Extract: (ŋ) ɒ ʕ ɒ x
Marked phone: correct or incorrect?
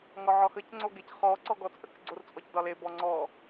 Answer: correct